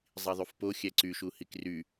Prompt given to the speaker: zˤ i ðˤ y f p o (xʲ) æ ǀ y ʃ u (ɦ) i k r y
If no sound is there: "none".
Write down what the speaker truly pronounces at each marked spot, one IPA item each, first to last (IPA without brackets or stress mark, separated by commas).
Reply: xʲ, h